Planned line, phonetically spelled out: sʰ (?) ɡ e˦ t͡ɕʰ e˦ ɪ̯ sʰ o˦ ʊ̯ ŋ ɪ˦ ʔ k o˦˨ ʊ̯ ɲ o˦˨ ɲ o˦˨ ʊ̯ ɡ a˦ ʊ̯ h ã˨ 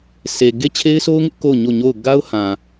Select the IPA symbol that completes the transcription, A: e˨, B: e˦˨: A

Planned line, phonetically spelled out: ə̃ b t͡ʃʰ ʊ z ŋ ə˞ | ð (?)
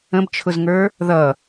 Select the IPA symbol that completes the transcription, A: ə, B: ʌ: B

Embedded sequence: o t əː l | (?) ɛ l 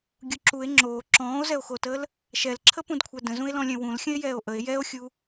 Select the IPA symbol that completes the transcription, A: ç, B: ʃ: B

